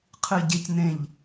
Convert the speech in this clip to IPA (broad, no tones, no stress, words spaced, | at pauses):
qʰɨ ɟec nẽʎ